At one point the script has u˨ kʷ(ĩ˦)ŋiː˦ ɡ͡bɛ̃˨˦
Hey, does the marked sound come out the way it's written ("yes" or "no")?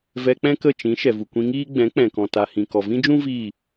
no